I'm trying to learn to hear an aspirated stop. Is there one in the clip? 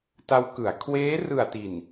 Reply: yes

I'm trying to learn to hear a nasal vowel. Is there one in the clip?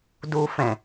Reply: yes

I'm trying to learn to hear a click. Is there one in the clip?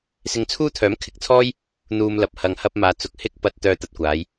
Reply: no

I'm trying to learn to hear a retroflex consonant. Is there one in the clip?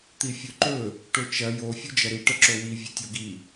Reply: yes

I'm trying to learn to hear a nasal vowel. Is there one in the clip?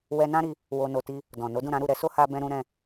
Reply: yes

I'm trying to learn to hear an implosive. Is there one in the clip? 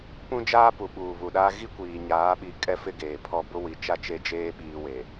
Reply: yes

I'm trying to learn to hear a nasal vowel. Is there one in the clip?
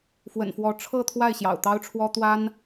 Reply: no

